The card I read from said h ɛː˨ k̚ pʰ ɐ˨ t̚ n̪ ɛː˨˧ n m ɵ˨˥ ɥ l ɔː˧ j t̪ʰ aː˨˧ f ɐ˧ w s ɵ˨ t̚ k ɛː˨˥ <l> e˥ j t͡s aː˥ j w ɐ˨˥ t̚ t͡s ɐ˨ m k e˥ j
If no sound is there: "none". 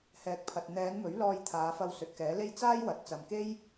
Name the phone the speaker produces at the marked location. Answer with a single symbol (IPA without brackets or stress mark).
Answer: l